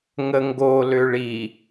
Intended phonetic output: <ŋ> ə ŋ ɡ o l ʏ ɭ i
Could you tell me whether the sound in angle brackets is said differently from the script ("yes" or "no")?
no